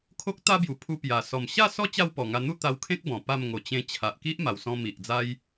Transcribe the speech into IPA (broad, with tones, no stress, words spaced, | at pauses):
kʰo˦k̚t̪a˦bju˨˩ pʰu˧pja˨˩ sɔ˨˩mɕa˥˧sɔ˦ t͡ɕa˥˧wpɔ˨˩ŋa˧ n̪u˥˧t̪a˧wkʰẽ˦k̚ bɔ̃˨˩pa˥˧m ŋo˨˩t͡ɕẽ˧ t͡ɕʰa˨ʔki˦ʔ ma˨˩wsɔ̃˧ mi˨ʔd͡za˦j